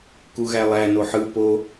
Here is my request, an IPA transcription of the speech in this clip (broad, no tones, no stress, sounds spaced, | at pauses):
k u ɣ æ lˠ æ n o ħ ɯ p o